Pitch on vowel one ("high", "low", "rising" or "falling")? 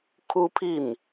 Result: high